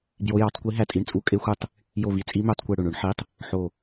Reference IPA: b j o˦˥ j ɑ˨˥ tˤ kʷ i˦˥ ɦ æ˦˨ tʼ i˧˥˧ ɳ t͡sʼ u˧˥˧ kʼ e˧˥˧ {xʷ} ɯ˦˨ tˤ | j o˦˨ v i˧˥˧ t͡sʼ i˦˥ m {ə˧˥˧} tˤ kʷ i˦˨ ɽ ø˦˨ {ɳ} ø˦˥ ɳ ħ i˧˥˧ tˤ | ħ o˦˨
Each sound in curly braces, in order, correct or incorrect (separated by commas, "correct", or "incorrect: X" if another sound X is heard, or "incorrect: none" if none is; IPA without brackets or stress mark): correct, incorrect: ø˧˥˧, correct